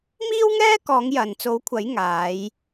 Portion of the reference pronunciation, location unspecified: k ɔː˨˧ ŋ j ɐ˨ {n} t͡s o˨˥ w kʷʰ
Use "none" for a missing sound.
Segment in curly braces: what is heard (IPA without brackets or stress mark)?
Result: n